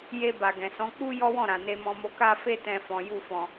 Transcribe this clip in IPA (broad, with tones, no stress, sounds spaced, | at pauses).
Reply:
j e˧ b a˨ ɡ ɛ̃˨ s ɔ̃˨˦ k͡p u˦ j ɔ˦ w ɔ̃˦˨ ɾ ã˨ n e˧ m ɔ̃˧ m o˧ k a˦ f e˦ t ɛ̃˧ f ɔ̃˦ j u˦˨ f ɔ̃˨